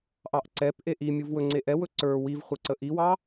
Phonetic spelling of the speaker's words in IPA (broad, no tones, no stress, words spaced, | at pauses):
ʔɑʔǀɛpʔe ʔimʲuv wɵŋ͡ǀe ʔɛwɵ ǀə˞ wivχʷɪ ǀəʔiwɑ